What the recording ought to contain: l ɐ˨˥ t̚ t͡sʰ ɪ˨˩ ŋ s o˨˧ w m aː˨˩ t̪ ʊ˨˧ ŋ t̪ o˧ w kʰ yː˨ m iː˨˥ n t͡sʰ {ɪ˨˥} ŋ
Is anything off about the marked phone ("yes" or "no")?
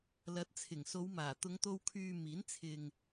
yes